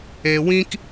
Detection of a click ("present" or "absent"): absent